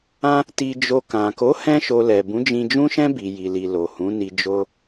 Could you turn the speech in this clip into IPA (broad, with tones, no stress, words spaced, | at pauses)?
ã˦ | ti˧d͡ʒo˧ kã˨ko˨˦ hɛ̃˦ʃo˧lɛ˨ bũ˨˦d͡ʒĩ˧d͡ʒũ˦ʃɛ̃˦ bi˧ji˧li˧ lo˨hũ˨˦ni˧d͡ʒo˦